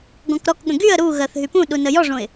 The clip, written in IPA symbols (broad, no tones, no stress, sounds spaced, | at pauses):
ɡ ɔ̃ k ɾ ɔ k ɠ ə̃ ɡ y ə̯ ɾ u ɣ ɜ θ ɦ y p ũ ɗ u n ə j ɔ ʐ õ ɪ̯